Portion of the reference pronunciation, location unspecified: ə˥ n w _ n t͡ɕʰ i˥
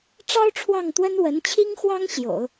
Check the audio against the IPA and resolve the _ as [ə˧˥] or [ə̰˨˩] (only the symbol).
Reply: ə˧˥